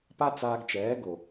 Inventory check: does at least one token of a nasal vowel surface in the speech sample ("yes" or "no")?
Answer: no